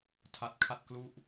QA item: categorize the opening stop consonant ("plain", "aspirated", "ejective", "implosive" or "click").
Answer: aspirated